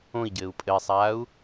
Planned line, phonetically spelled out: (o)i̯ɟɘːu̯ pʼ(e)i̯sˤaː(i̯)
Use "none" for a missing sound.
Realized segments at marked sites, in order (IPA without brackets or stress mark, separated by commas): õ, ɘ, u̯